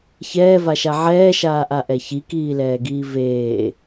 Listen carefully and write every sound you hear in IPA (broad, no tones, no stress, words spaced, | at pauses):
çɛːvaʃa ʕɛːʃaːʔaʔɛ çikiːlɛːɡiː veː